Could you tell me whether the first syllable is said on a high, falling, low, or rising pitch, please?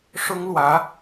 high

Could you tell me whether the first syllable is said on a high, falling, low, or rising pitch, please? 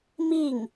falling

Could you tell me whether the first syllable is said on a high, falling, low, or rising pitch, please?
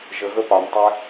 low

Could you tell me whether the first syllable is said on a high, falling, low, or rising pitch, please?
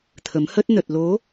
rising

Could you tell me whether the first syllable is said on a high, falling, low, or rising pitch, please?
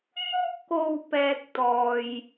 high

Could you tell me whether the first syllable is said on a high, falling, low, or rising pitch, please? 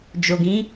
low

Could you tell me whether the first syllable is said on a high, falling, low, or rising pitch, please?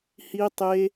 high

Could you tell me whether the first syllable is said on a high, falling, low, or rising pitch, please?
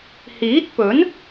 rising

